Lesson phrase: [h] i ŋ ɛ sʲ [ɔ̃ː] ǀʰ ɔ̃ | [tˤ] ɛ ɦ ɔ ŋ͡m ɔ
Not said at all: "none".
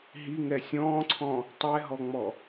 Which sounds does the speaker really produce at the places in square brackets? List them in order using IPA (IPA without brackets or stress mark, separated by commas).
ɦ, ɔ̃ː, tˤ